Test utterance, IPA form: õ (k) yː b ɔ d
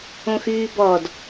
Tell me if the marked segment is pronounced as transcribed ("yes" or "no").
no